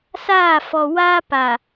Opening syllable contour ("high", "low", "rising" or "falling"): falling